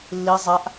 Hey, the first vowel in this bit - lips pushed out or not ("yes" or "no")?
no